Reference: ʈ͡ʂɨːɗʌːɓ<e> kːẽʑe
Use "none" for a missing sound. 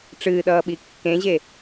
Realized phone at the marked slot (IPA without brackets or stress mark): i